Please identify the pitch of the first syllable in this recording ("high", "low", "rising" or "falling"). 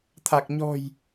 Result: low